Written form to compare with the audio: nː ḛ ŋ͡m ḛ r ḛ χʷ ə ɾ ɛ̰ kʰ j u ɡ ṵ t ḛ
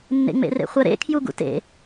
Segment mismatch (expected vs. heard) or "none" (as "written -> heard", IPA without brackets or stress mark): ɛ̰ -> ḛ